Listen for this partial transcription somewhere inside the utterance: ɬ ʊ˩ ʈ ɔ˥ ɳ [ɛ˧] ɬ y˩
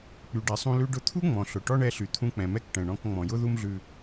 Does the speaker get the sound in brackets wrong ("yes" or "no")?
no